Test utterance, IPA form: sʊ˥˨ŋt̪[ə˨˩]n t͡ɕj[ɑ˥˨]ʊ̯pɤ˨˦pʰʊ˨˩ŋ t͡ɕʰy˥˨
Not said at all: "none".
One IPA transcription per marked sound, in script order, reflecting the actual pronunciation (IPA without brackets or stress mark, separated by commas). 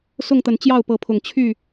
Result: ə˨˩, ɑ˥˨